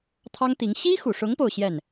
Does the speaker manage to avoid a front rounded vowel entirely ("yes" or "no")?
yes